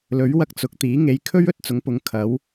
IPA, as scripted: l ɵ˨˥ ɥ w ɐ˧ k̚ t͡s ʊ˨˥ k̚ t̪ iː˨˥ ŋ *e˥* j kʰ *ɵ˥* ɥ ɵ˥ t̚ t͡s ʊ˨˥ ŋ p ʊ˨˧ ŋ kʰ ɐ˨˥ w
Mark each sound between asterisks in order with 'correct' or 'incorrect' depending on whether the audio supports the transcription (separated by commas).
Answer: incorrect, correct